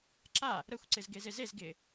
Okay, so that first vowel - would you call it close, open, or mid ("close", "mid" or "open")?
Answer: open